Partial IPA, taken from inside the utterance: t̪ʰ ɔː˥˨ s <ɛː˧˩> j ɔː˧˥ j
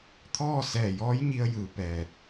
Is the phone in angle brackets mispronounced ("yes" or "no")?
no